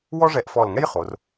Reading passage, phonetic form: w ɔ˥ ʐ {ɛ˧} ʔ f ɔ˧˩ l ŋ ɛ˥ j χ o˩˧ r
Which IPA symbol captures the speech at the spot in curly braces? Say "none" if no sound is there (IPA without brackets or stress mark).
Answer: ɛ˧